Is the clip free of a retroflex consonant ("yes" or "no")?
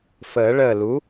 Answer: no